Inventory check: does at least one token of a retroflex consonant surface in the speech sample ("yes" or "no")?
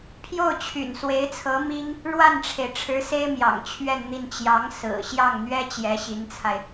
yes